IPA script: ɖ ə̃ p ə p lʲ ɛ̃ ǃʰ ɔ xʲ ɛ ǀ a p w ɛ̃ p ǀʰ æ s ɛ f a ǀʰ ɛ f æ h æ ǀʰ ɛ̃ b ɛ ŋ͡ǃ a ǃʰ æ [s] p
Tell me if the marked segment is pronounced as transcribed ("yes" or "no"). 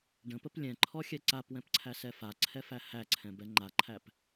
no